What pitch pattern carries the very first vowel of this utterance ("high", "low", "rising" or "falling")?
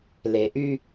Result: low